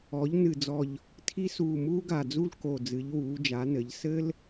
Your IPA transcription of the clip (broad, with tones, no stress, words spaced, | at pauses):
ɔ˩˧ʎ nɨ˨˩d͡zɔ˨˩ʎ | tʰi˦ suː˨˩muː˦ɡa˨˩d͡zu˦l ko˨˩ d͡zɨ˩˧ʎwuː˩˧d͡ʒa˩˧nɘ˩˧ʎ sɘ˦l